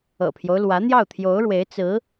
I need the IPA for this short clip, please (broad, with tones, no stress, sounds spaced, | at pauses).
ɤ̰˨˩ pʰ j o˦ ʊ̯ l w ä˧˥ n̪ j ɑ˥˩ ʊ̯ t̪ʰ j o˧˥ ʊ̯ ɻ w e˧˥ ɪ̯ t͡s ɹ̩˧˥